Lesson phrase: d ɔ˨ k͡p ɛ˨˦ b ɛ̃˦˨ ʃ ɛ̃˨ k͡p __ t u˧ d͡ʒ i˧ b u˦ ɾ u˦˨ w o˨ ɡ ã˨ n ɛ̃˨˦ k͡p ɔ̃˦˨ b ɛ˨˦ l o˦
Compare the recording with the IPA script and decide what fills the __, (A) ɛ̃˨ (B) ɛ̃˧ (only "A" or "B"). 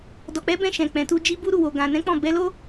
A